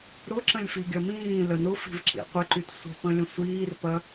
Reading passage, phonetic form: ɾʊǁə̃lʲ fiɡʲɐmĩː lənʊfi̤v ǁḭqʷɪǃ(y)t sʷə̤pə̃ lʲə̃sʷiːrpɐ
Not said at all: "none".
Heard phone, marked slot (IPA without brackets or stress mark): y